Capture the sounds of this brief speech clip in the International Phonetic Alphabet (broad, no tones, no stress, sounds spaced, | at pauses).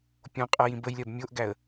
pʲ õ qʼ æ j ĩ b ə j lʲ ɜ b mʲ o ʔ ɡ æ ə̯